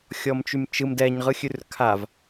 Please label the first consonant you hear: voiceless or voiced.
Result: voiceless